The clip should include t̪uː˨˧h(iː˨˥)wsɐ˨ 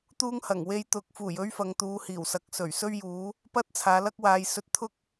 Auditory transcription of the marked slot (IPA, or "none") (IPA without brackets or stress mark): iː˨˩